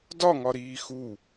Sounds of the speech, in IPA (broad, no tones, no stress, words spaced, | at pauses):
dɒŋɒɾiː xu